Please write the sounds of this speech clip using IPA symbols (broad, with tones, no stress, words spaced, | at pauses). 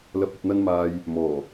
lɐ˧p̚ɐ˧p̚n̪ɐ˥nmaː˧j | mɔː˨˩